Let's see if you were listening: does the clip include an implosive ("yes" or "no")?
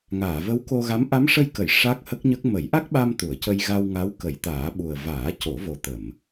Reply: yes